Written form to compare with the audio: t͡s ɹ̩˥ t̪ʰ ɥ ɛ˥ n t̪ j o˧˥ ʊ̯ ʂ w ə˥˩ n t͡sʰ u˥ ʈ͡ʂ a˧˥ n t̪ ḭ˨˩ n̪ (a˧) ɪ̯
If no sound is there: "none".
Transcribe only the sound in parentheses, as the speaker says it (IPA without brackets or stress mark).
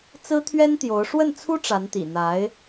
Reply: a˧˥